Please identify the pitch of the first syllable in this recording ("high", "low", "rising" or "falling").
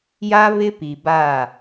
high